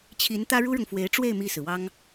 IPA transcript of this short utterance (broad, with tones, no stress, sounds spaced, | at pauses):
t͡ɕʰ i˧˥ n t̪ ä˥ ɻ u˥ ɻ ʊ˨ ŋ f w e˧˥ ɪ̯ ʈ͡ʂ w e˥˧ ɪ̯ m i˥˩ s ɹ̩˩ w ɑ˥ ŋ